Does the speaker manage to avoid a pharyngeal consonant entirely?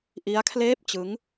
yes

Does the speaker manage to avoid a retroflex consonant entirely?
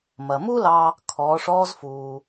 no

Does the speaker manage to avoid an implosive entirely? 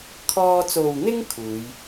yes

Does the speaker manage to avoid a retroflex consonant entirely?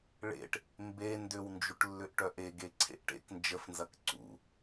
no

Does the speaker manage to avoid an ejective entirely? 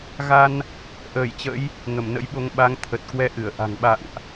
yes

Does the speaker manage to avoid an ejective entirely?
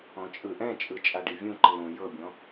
no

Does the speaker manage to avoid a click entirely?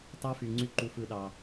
no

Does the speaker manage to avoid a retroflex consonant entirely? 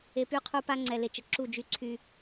yes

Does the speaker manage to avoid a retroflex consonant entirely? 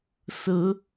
yes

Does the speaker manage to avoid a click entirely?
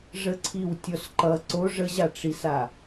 no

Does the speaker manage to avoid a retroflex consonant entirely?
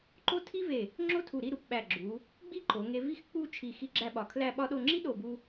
yes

